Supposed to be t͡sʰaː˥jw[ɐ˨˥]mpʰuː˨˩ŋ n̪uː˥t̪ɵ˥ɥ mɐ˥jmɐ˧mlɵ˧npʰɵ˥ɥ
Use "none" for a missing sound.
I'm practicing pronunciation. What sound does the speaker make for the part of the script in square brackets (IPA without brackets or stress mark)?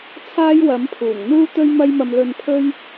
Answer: ɐ˨˥